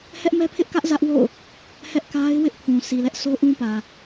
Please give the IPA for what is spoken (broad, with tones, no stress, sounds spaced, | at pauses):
h ɛ˦ ʔ m ɛ˦ pʰ ɪ˦ ʔ k ä˦ ʔ z ä˦ ʔ w o̰˦˨ ʊ̯ | h ɛ˦ ʔ k a˦ ɪ̯ w ɪ˦ ʔ pʰ ũ˨ s i˨ l ɛ˦ ʔ s o˦ ʔ ũ˦ p ä˨